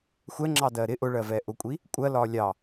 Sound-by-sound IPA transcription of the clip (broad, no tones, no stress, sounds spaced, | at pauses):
xʷ ɛ ŋ͡ǁ ɑ d ɜ ɾ ɪ ʔ ʊ ɭ ɜ v ɛː ʔ ʊ kʷʼ i | kʷʼ ɜ l ɒː lʲ ɑ